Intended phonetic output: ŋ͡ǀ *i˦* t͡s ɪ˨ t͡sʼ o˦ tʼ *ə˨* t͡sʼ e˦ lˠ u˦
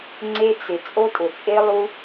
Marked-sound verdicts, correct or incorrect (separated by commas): incorrect, incorrect